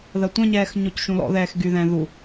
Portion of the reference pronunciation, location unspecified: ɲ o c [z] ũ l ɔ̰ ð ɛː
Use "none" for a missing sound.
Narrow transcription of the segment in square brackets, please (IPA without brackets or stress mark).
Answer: ʃ